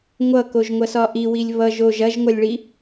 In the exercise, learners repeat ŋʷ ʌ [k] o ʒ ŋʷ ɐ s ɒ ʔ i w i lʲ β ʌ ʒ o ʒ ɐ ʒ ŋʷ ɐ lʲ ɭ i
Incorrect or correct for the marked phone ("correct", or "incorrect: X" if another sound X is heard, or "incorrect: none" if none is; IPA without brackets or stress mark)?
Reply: correct